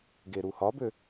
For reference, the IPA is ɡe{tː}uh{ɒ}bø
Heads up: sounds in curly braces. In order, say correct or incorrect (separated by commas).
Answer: incorrect, correct